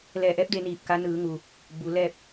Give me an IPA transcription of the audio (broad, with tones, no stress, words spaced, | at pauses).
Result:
lɛː˧˩ʔɛː˧˥p̚ de˧˥niː˧˩p̚ka˧˥ nɯː˩˧ŋuː˩ | buː˩˧lɛː˥˨p̚